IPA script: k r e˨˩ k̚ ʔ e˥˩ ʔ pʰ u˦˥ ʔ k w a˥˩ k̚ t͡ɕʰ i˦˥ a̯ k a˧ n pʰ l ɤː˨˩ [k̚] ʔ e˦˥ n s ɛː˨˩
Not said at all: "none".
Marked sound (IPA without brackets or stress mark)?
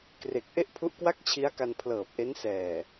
p̚